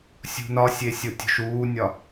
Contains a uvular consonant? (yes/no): no